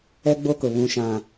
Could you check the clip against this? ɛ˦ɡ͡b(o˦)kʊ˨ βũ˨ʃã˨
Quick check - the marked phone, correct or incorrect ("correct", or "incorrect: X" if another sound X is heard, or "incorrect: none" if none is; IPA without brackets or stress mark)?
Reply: correct